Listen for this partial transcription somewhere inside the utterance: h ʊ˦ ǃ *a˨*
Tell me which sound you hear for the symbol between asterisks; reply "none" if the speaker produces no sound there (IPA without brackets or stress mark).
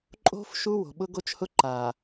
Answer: a˨